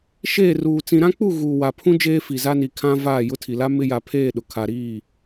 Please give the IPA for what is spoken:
ʃ eː˦˨ r uː˨ t͡s ĩ˦ ɾ ã˦ k͡p u˦˨ ɣ uː˨ w a˨ pʰ ũ˦ d͡ʒ eː˦ f i˨ z a˦ n i˨ kʰ ã˦ v aː˦˨ j ʊ˦ tʰ i˨ l a˦ m ɪ˦ j a˨ pʰ eː˦˨ ɗ ʊ˨ kʰ a˨ ɾ iː˦˨

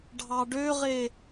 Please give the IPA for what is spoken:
ɖʱ ɑ ɖ ø ʁ e

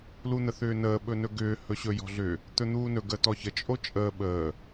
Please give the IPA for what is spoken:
l u n̪ ə θ ʏː n əː ɓ ɵ n ɵ ɡ ʏː h ɵ ɕ ɵ j ɔ̤ ɮ ʏ | t̪ ɵ n̪ uː n ɵ ɡ ə t ɔ ç ə t͡ʃʼ o t͡ʃʼ əː ɓ əː

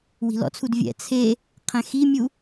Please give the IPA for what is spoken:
w i̤ l ɔ̰ t͡sʰ u d vʲ ɛ̰ t͡sʰ e | qʰ ɛ̃ x i mʲ u

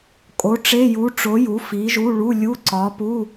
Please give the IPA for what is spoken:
kʼ o˨˥ ʈ͡ʂ e˧˥˧ j u˨˥ ʈ͡ʂ o˨˥ j u˨˥ f i˨˥ ʒ u˧˥˧ ɭ u˧˥˧ lʲ u˧˥˧ ǀ ɒ˨˥ p u˧˥˧

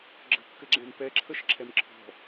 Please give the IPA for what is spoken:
ɡ͡ǁ ə̤ kː ɘ ɡ͡ǁ ɛ̃ m p ɛ ǁʰ ə ʃ ǁʰ ɛ m ǁʰ ɔ̤

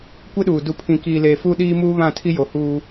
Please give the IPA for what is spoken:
kʷ ɪ˦ ɗ uː˨ d u˨ pʰ ĩ˨ k iː˨ l eː˨ f u˦ ɗ iː˦ m uː˦ β ã˦˨ tʰ i˦ j o˨˦ h uː˦

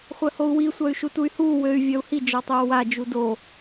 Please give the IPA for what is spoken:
χʷ œ h o u̯ w i sʷ œ y̯ ʃ u t u y̯ h uː w ø y̯ vʲ œ u̯ h i d͡ʒ ɔ tˤ oː w a d͡ʒ u d o

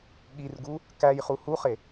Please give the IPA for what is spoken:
ɠ i r ɡ u | k æ j χ u h u χ e

